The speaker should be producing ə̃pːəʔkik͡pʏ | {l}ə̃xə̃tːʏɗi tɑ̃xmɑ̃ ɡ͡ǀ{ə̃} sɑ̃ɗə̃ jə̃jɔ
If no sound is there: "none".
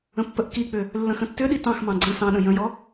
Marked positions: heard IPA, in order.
lː, ə̃

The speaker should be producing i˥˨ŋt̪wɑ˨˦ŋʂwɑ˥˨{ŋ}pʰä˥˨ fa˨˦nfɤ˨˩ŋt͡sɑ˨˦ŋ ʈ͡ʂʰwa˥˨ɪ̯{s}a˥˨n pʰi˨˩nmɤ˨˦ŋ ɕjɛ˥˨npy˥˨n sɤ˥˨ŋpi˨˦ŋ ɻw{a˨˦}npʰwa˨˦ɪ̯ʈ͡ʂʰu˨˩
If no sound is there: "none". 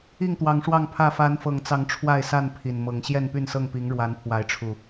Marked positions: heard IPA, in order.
ŋ, s, a˨˦

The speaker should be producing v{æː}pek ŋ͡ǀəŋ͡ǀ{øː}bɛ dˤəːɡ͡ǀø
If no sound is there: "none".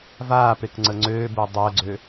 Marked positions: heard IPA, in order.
aː, øː

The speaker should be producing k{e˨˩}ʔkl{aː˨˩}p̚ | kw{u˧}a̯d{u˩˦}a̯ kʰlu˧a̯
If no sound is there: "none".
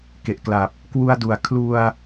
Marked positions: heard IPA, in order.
e˨˩, a˨˩, u˧, u˩˦

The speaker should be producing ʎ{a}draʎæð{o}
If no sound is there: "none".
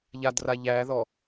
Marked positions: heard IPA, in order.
a, ɔ

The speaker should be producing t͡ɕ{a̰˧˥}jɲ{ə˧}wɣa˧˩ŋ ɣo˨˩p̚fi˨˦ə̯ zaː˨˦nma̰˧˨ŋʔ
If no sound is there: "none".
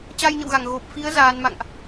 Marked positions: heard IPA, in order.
a˧, ə̰˧˨

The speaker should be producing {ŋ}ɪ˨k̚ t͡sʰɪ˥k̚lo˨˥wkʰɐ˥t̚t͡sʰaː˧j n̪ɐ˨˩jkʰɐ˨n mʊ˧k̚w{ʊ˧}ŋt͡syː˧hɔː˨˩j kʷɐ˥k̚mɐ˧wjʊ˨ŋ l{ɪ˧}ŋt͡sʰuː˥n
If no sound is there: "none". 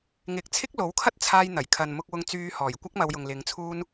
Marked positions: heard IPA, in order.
ŋ, ʊ˧, ɪ˨˧

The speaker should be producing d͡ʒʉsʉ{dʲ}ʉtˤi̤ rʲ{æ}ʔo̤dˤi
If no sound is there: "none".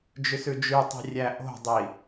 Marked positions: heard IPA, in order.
d͡ʒ, æ

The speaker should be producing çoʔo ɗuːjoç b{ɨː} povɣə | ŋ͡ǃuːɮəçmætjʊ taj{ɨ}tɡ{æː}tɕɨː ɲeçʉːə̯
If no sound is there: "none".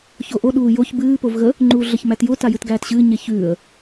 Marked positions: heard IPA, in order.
ɨː, ɨ, æː

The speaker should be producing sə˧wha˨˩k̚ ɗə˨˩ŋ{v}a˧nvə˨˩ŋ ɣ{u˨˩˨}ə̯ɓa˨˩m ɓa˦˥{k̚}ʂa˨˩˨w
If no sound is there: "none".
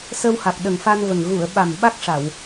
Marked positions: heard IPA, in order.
f, u˨˩˨, k̚

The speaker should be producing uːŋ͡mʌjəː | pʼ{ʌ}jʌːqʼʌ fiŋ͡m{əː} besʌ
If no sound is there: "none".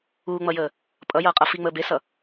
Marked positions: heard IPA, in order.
ʌ, əː

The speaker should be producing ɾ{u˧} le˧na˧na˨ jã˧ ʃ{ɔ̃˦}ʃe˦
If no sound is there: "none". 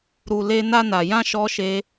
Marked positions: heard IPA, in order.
u˨, ɔ˦

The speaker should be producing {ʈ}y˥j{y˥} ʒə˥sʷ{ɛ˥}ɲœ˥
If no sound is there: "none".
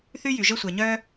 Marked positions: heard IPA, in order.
θ, y˩, ɛ˩

